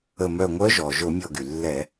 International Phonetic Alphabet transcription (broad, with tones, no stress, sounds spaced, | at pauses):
ə˧˩ m œ˧˩ ŋʷ œ˧˥ ʒ ɔ˩ ʒ o˧˩˧ mʲ ɔ˧˩ ɡ y˩ lː ɛ˧˩˧